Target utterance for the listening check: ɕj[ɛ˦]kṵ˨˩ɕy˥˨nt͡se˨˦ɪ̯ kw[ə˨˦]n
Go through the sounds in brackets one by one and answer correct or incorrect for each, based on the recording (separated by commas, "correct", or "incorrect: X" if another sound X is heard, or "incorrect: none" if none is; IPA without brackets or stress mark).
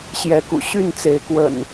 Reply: incorrect: ɛ˨˦, incorrect: ə̰˨˩